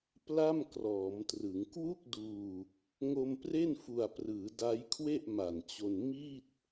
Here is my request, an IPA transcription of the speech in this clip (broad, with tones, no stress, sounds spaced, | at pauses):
p l a˥˩ m k r ɔː˩˦ m t r ɯ˩˦ ŋ k w u˥˩ k̚ d uː˧ | ŋ o˧ m p r e˥˩ n f u˨˩ a̯ p r ɯː˩˦ d a˦˥ j kʰ w e˥˩ ʔ m a˨˩ n t͡ɕ o˧ n m i˥˩ t̚